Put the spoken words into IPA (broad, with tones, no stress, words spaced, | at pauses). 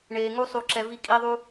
ɳeː˧ ŋu˦sˤu˧ǁɛ˧ vi˧kʼi˧ðˤu˧